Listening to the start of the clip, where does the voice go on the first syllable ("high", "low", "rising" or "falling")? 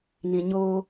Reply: low